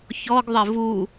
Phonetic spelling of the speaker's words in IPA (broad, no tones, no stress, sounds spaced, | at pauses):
ç ɔ ɡ ðˤ ɘ v u